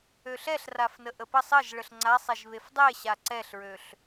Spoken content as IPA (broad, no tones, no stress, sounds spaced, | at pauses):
ø ɬ ɛ ɬ r a f n ə ʔ ə p ə sˤ ə ʒ ɭ ə ɬ ŋ͡ǀ a sˤ e ʒ β e f dˤ e ɕ a ǀ ɛ ɬ ɹ ø ɬ